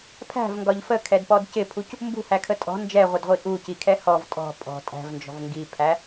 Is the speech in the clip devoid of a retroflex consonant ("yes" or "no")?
yes